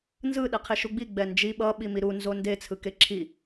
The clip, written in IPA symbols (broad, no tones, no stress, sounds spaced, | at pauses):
n z ɯ ɗ ɛ qʰ e ʃ u ɡ͡b i ɡ͡b ɛ n d͡ʒ i ɓ ʌ ɓ i m i ɾ u n z o n d e t͡sʰ ɯ k e ǁʰ i